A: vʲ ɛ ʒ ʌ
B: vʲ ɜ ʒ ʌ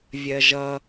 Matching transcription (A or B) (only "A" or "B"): B